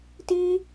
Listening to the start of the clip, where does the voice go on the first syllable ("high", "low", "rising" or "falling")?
high